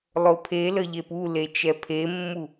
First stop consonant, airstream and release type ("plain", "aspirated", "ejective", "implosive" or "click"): aspirated